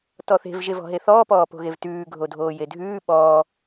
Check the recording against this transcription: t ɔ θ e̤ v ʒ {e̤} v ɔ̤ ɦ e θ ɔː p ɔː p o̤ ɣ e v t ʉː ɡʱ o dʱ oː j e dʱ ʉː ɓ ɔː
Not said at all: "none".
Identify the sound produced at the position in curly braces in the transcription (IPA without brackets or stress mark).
e